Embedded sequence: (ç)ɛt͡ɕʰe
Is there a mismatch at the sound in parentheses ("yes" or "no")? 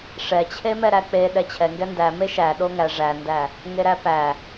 yes